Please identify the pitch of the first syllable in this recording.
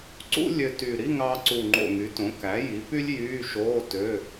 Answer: high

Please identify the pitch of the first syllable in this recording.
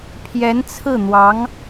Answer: rising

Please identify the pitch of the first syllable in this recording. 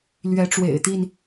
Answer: rising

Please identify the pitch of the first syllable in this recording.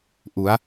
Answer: rising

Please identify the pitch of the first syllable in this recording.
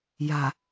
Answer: low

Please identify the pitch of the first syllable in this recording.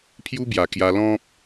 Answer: high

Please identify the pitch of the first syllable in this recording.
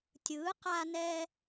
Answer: rising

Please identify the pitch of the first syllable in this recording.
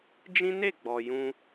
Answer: high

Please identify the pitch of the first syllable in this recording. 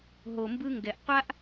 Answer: low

